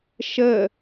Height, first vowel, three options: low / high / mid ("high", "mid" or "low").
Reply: mid